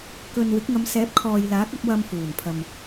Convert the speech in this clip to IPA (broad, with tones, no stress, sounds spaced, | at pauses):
k ɵ˨ n w ɪ˨˥ k̚ ŋ ɐ˨˧ m s ɛː˨˥ p̚ kʰ ɔː˨ j l aː˨˥ k̚ ɐ˧ p̚ w ɐ˧ m f uː˨˩ n pʰ ɐ˨ m